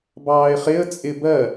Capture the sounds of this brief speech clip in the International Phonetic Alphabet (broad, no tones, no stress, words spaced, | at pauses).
bɑːɪ̯χɪə̯ t͡sʼɪ bɜ